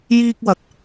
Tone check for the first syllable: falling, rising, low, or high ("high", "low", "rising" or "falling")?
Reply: high